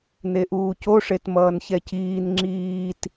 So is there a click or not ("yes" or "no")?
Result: yes